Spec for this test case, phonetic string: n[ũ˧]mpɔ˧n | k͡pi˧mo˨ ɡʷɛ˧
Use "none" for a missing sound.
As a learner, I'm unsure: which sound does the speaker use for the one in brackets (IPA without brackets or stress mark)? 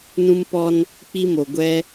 ũ˧